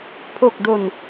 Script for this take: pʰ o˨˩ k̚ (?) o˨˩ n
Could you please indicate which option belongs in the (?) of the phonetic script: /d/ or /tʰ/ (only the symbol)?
d